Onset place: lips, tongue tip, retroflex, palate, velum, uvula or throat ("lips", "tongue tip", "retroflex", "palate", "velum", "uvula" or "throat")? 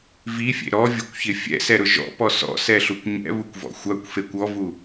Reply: lips